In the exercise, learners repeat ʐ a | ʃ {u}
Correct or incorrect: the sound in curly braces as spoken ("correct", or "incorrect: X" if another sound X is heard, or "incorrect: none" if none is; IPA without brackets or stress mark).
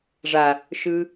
incorrect: ɯ